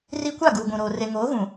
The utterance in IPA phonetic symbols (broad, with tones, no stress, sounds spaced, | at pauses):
r i˦ kʷ a˦˨ ɡ uː˨ ɡʷ ũ˨ ɾ oː˨ r e˨ ŋ oː˨˦ ɣ ũ˨